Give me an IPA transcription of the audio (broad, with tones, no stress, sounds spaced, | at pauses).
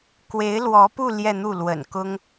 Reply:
k w e˧˥ ɪ̯ l w ɔ˧˥ p u˥˧ l j ɛ˥˧ n̪ u˥˩ l w ə̰˨˩ n k ʊ˥ ŋ